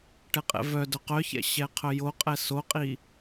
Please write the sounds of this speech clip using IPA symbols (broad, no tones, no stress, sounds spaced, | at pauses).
ʈ ɛ qʼ ɛ̰ v œ d œ q œ ç ɛ̰ ɕ ɛ qʰ œ j o qʼ ɛ s o qʼ i